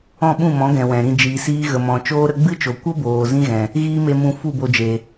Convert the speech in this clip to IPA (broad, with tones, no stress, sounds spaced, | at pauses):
ɔ̃˦˨ ɓ ũ˦˨ m ɔ̃˨˦ ɡ ɛ̃˨ w ɛ̃˨ ɾ ĩ˧ d͡ʒ iː˨ s iː˦ ɣ ə˨ m ɔ̃˨ t͡ʃ oː˦ ɾ ə˦ ɡ͡b ɨ˦ t͡ʃ o˨ kʷ ə˦ b oː˨ z ĩ˦ ɣ ɛ̃˨ | ɣ iː˦ m e˧ m ũ˧ f u˦˨ b o˧ d͡ʒ e˨